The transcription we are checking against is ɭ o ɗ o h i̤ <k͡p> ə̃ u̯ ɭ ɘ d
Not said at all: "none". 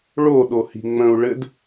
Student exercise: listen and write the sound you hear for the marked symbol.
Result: ŋ͡m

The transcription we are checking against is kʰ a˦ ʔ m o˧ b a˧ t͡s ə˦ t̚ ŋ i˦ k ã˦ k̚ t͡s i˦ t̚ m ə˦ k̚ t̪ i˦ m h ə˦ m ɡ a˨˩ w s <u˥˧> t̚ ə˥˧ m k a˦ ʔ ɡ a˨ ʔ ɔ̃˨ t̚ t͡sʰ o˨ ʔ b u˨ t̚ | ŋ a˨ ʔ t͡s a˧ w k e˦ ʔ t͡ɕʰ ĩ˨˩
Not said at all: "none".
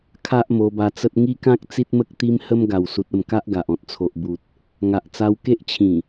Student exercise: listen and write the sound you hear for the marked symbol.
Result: u˨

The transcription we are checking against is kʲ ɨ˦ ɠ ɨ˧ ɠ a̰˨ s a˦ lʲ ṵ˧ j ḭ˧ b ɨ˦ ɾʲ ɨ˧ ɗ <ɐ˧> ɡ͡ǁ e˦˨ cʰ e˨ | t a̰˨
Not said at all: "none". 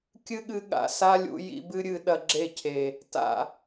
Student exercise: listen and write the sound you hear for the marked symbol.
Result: ɐ˧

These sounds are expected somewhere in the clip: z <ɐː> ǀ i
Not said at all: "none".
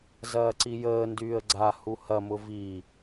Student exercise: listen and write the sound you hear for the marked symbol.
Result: ɐː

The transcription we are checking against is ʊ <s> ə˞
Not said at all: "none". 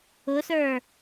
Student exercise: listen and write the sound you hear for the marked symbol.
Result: s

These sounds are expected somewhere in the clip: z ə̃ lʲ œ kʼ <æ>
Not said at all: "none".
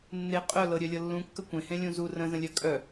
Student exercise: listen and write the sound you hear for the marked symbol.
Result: œ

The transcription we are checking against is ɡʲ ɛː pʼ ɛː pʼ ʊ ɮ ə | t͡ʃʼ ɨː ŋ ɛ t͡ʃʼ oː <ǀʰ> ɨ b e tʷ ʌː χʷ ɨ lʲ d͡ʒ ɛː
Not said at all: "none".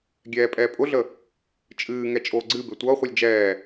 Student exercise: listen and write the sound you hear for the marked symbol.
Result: ɡ͡ǀ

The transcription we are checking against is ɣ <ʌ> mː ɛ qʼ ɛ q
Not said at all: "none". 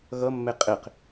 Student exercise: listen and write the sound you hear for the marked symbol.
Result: ʌ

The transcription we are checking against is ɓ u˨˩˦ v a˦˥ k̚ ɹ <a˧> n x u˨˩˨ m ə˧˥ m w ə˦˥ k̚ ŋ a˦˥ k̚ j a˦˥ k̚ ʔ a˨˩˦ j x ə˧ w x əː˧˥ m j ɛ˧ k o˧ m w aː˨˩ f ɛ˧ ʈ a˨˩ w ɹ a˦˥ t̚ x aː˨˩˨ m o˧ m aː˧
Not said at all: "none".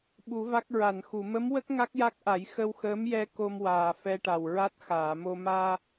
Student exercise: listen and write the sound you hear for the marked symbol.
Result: a˨˩˨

